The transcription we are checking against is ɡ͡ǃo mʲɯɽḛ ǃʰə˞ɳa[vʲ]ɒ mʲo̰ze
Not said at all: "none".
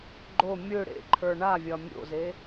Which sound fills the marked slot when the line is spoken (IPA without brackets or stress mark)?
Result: vʲ